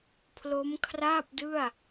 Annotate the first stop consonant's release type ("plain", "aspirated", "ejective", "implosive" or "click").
aspirated